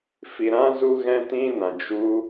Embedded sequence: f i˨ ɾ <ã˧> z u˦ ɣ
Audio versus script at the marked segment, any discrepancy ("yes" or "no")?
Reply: yes